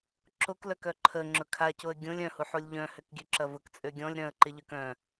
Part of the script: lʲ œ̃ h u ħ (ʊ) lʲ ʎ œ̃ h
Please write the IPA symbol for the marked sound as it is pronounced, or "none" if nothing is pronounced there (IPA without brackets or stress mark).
u